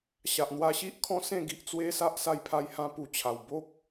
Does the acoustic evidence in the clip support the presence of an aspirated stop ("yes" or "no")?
yes